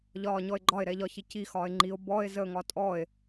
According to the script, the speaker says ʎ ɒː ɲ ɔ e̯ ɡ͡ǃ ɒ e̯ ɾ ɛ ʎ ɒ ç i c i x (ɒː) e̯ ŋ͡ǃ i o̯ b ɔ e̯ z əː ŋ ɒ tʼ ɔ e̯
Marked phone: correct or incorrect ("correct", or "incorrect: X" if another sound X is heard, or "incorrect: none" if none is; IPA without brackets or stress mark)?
correct